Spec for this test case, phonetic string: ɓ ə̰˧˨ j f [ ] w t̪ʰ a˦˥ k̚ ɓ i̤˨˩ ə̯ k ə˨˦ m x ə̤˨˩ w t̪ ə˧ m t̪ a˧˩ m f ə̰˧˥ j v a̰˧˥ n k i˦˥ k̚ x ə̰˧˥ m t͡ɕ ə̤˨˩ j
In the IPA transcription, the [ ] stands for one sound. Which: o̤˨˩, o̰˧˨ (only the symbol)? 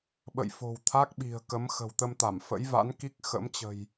o̤˨˩